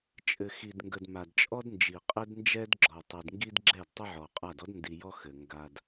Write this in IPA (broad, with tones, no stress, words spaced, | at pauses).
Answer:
t͡ʃʼɘ˨xi˨dŋɡə˨d ma˨dt͡ʃʼɔ˦dnd͡ʒi˨ qʼɘ˦dnd͡ʒɛ˦dɡ͡ǁɔ˨ tˤi˨dŋɡi˦dɡ͡ǁɛ˦˨d tˤə˦ʕɔ˨qʼa˦˨d ɔ˦dndi˨ jɔ˦xɘ˨ ŋɡa˦d